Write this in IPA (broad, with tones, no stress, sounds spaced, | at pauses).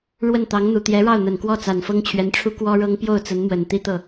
ɻ w ə˥˩ n t̪ ɑ˧˥ ŋ n̪ u˨˩ t̪ j ɛ˧˥ ɻ ɑ˥˩ ʊ̯ n̪ ə˨˩ n k w ɔ˥˩ t͡s a˨˩ n f ɤ˥ ŋ t͡ɕʰ ɥ ɛ˧˥ n ʈ͡ʂʰ u˥ k w ɔ˥ ɻ ɤ˥ ŋ p j o˥˩ ʊ̯ t͡s ə˧˥ n m w ə˨˩ n t̪ i˥ t̪ ɤ˥˩